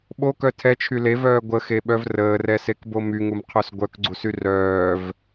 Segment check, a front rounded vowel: present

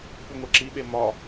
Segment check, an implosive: present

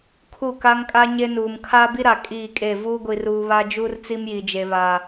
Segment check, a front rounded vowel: absent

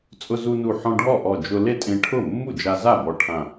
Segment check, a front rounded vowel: absent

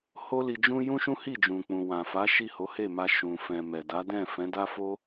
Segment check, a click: absent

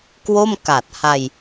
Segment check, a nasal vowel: absent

